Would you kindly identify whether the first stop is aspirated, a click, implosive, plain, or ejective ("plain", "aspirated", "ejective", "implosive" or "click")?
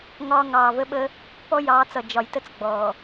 implosive